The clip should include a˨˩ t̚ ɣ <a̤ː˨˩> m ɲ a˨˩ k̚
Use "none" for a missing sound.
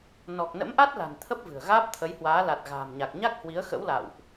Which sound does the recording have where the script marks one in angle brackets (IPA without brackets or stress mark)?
a̤ː˨˩